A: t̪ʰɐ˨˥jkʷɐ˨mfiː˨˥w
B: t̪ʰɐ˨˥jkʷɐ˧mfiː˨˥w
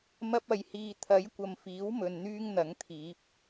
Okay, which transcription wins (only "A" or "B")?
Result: A